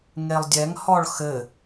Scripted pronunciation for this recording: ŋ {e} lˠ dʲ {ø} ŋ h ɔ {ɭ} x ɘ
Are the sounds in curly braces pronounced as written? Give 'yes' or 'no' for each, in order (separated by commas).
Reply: yes, no, yes